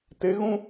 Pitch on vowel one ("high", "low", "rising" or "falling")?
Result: rising